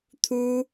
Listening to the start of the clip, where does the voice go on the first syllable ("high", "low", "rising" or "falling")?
high